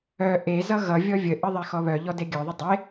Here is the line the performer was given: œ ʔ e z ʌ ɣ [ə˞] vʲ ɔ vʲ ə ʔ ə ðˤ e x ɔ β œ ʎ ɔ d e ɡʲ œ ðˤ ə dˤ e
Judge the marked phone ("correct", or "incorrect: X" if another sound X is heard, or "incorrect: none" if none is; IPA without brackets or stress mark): incorrect: ʌ